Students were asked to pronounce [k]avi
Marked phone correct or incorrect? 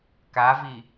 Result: correct